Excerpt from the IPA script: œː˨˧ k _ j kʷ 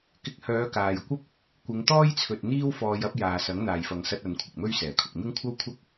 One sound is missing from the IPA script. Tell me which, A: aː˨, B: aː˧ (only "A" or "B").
A